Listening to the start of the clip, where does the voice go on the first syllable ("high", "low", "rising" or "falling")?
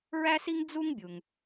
high